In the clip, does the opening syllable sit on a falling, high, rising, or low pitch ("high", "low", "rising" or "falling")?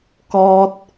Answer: high